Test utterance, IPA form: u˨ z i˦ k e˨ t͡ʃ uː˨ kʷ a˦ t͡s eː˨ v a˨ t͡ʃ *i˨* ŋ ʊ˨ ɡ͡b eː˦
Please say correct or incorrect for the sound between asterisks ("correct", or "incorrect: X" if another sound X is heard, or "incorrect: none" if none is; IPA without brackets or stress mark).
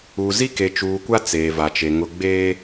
incorrect: e˨